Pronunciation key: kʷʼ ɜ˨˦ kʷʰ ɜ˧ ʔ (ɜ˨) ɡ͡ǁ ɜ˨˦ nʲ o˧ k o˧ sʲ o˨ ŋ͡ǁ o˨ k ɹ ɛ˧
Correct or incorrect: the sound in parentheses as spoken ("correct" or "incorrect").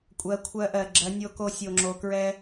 correct